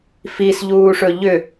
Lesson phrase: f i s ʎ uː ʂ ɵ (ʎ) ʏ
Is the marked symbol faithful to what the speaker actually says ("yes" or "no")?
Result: yes